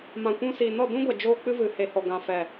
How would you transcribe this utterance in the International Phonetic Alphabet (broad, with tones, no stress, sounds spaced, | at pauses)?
m ã˨ kʷ ũ˧ s iː˨ n ɔ˦˨ d ũ˦ ɡʷ ɛ˨ d͡ʒ oː˦ k͡p ɨ˦ v ɨ˨ h e˨ h ɔ˨ ɡ ã˨ f ɛ˨